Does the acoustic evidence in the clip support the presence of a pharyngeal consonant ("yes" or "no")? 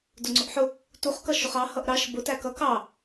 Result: yes